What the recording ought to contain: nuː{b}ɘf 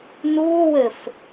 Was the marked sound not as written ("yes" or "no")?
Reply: yes